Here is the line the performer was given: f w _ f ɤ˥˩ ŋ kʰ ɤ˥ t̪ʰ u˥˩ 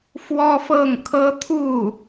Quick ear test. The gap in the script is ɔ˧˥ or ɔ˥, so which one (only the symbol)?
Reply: ɔ˥